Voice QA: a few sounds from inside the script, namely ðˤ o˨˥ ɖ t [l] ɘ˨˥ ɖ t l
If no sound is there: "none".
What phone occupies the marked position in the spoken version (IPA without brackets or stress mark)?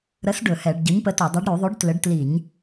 l